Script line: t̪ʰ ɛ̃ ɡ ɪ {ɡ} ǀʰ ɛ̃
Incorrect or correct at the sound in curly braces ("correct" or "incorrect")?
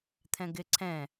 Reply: incorrect